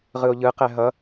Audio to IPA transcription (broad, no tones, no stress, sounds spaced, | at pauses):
ʁ ɯ o̯ ʎ ɯ q ɛ ɦ ʌ